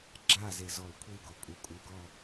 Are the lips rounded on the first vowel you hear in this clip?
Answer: no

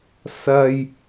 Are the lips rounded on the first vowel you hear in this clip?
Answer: no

